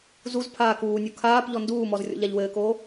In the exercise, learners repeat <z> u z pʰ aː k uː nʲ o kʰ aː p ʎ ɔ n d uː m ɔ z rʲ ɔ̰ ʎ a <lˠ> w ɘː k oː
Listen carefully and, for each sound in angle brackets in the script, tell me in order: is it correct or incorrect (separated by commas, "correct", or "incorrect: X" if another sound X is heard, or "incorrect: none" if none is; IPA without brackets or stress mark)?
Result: correct, incorrect: ʎ